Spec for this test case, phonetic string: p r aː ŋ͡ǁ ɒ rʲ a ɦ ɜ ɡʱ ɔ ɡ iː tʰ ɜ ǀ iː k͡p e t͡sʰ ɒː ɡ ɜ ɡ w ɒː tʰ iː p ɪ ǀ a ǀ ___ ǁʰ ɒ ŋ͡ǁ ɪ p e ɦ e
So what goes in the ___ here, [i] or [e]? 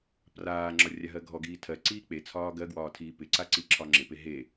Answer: i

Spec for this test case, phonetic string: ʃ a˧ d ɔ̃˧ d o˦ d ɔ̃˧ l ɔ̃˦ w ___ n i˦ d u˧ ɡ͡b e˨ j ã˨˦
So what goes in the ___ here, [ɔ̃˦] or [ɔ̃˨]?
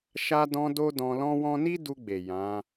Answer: ɔ̃˦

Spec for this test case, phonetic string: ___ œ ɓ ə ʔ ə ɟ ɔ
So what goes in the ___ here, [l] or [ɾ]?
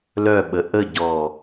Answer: l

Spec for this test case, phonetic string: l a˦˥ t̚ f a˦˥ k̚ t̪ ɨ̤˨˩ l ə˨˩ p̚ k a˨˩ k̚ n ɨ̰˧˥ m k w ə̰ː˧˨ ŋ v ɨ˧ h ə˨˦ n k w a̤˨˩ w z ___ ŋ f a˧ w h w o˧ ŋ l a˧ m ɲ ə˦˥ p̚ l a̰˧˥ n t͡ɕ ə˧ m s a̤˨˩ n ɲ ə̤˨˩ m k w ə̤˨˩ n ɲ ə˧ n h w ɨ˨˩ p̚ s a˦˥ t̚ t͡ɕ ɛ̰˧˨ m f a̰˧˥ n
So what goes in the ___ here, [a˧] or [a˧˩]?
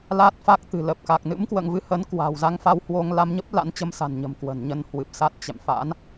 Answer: a˧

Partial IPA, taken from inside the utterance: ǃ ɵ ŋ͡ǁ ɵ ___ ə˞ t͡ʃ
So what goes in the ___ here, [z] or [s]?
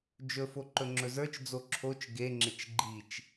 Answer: z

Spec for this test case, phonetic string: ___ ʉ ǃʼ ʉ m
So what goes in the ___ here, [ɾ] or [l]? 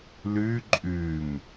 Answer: l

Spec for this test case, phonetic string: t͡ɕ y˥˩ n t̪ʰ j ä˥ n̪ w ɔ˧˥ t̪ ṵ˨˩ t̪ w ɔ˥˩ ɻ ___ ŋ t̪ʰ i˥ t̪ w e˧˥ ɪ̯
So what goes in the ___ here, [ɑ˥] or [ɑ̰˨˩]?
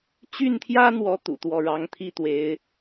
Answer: ɑ˥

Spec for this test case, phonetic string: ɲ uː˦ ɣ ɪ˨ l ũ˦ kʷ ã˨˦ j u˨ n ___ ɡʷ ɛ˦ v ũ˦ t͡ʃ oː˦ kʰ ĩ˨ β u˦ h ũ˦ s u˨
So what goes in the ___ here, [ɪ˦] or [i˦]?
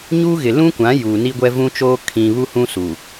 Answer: i˦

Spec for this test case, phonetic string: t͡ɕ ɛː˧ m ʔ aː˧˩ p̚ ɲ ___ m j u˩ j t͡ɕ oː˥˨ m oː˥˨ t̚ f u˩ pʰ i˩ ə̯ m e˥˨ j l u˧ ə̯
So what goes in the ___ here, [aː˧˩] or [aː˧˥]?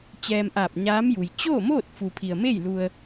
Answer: aː˧˥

